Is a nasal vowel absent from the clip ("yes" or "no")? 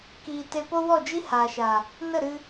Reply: yes